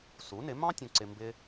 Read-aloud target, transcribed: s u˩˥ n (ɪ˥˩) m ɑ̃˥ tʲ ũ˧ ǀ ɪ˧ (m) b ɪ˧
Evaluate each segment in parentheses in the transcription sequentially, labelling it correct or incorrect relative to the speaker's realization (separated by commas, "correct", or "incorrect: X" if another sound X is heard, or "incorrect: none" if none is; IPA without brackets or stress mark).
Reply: incorrect: ɪ˩˥, correct